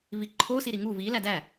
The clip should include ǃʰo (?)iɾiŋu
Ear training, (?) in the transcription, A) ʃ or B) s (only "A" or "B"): B